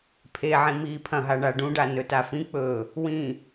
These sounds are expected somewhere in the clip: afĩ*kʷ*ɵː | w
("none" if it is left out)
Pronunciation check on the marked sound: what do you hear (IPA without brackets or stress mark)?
k͡p